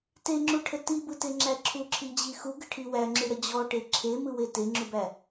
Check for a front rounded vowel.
absent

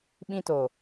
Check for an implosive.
present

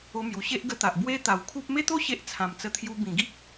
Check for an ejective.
absent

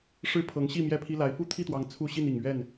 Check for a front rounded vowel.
absent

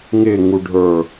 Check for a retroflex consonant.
present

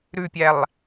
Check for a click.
absent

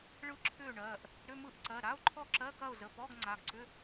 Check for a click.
present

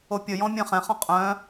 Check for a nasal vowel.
present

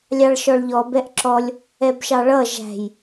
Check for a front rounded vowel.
absent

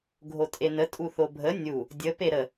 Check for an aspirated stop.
absent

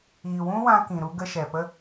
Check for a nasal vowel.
present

